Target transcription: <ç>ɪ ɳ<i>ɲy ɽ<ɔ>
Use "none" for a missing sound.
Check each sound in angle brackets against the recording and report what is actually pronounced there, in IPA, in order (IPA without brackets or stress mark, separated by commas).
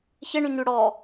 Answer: ç, y, ɔ